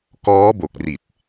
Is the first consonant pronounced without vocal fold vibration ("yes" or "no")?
yes